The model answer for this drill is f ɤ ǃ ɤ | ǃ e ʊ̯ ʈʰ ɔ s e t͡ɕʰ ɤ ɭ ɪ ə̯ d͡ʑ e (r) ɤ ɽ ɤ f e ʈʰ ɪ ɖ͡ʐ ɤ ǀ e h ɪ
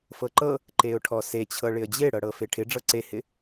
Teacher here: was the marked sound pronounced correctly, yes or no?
no